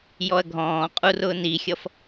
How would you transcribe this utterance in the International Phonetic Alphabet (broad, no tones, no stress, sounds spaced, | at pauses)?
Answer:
j ɔ ɐ̯ ɡʱ ɔ̃ː qʼ u r ʊː n i xʲ ʌ f